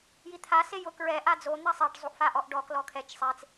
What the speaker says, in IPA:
j i t̪ʰ a s e j ʊ k ɹ ɛ ʔ a d͡z o n̪ ɛ sˤ e ɖ zˤ u ʔ f a ʔ ɔ ʔ ɖ ɔ k l ɔ kʰ ɛ t͡ʃ sˤ e t͡s

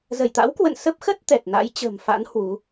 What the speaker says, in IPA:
z ə˧˩ j t̪ a̰˧˥ w k w ə̰˧˨ n s ə˦˥ p̚ x ə˦˥ t̚ t̪ ɛ˨˩ t̚ n a̰˧˥ j t͡ɕ ə̤˨˩ m f a̰˧˥ n h w u˨˦

